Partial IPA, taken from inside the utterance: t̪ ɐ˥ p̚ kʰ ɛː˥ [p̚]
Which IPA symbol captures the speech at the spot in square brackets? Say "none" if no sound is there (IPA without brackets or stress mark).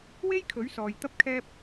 p̚